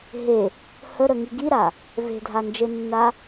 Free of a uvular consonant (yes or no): yes